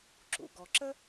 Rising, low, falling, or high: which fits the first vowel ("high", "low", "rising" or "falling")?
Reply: low